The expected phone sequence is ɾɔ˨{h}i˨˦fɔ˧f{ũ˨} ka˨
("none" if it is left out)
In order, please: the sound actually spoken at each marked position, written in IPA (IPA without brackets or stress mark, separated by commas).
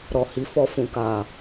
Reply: h, ũ˨